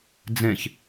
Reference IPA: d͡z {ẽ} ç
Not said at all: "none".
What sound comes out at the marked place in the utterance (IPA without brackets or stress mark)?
ẽ